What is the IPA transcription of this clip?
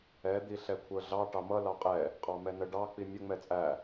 ɛ d̪ i ɬ ɛ kʷʰ ə˞ ɮ ɑ ʈ ɑ m ʌ l ɑ qʼ ɛ | qʼ ɑ m ɛ n ə ɖ ɑ k͡p i mʲ ə ŋ͡m ɛ t͡sʼ æ

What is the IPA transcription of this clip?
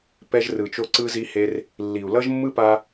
p ɛ˧ ʒ r ɯ˨ t͡ʃ o˧ ǀ ɯ˧ z i˧ h e˧ r | lː i˨ u̯ l ʌ˦ ʒ mː ɯ˦ p a˦

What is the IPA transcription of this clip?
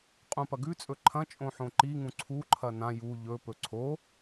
qʼ ũ p ɐ ɡ ʉ t͡sʼ ɵ ǃʰ ɐ̃ t͡ʃʼ õ ħ õ ǃ i ŋ ũ ǀʰ u ǃʰ ɐ n ã j u ʎ ɵ p ɵ ǀʰ o

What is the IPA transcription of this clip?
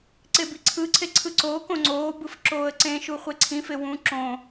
ǀ e b i ǀʰ ɯ ǀʰ e ǀʰ ɯ ǀ oː k õ ŋ͡ǀ oː b ɯ f ǁ oː ə̯ ǀ ẽ ʃ u χʷ e ǀʰ ĩ f e w ũ ǁ õ

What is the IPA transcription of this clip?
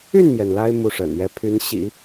y˥˩ n m j ɛ˩ n l a˥ ɪ̯ m u˥˩ ʂ ə̰˨˩ n ɥ ɛ˧˥ pʰ y˧˥ n ɕ ḭ˨˩˦

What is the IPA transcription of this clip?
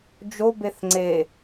d͡ʒ o b e θ ŋ͡ǀ e

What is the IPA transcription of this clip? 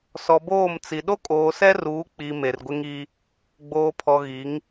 s ɔ˨ b oː˦˨ m t͡s i˨ ɗ o˦ kʼ oː˨ s ɛ˦ r uː˨˦ k͡p i˨ m e˨ r ɡʷ ɪ˦ ŋ i˦ | ɡ͡b oː˨ pʰ ɔ˨ ɣ i˨˦ ŋ

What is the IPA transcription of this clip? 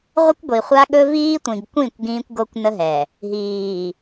ʁʷ ə˦ kʷ ɡʷ i˨ χʷ a˦ ɠ ɵ˦ v iː˦ tʷ ĩ˨ ɡ kʷ ĩ˦˨ kʷ ɡ ĩː˦ kʷ ɡ o˦ kʷ n ə˦ ɦ ɛ˨ | ɦ iː˨

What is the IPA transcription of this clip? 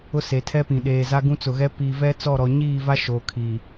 ʊ˦ s e˨ tʰ ɛ˦ p ĩ˨ ɗ eː˨ z a˦ ɡ ũ˦ t͡s ʊ˨ ɣ ɛ˦ p iː˨ v ɛ˦ t͡s ɔ˦˨ ɾ ɔ˨ ɲ iː˦˨ v a˦ ʃ oː˨ kʰ i˨

